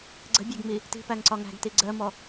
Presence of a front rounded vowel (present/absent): absent